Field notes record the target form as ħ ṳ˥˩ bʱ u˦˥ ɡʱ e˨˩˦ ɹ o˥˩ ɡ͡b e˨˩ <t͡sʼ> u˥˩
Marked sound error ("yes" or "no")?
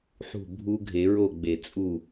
no